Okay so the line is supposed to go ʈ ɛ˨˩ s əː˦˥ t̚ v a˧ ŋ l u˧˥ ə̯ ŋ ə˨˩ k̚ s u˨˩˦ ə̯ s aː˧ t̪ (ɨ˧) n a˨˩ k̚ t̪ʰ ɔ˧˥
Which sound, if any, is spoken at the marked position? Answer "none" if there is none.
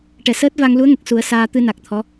ɨ˧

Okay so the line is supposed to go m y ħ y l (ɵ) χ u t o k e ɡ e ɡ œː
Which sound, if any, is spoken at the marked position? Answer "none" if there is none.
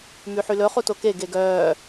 ɵ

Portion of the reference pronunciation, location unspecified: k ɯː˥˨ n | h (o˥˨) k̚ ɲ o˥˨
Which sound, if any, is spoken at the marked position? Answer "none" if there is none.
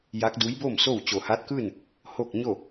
o˥˨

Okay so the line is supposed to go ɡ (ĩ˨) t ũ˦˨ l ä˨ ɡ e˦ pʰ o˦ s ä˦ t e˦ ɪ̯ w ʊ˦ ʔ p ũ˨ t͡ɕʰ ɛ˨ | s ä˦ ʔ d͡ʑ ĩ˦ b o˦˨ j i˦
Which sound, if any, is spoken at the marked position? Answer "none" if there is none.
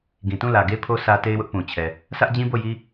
ĩ˨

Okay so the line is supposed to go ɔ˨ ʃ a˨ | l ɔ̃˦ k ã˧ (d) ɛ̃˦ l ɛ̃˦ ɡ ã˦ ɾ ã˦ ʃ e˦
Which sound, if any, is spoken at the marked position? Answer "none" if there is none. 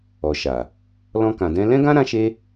d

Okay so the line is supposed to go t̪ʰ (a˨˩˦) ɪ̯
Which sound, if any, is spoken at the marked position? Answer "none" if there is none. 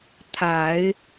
a˨˩˦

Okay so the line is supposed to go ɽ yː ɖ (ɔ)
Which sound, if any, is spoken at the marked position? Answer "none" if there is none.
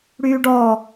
ɔː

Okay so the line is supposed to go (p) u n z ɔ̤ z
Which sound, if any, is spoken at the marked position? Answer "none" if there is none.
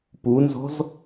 p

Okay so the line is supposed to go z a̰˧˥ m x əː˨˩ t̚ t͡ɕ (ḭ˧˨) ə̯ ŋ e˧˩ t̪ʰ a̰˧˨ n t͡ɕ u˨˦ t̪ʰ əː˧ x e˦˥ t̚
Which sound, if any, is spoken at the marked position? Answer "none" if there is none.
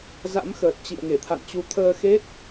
ḭ˧˨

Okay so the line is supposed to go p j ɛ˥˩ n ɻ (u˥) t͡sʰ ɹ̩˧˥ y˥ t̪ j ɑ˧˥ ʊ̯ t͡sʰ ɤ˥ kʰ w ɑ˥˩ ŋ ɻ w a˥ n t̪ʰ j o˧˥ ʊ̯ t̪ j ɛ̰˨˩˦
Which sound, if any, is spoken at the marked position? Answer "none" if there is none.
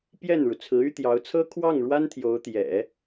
u˩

